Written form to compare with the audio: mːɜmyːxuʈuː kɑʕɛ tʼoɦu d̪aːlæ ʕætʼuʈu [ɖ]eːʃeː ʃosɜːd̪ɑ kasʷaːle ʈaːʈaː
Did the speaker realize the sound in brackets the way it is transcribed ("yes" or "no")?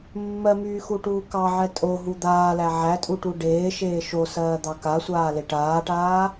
yes